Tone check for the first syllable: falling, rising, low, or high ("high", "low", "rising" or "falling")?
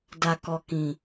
low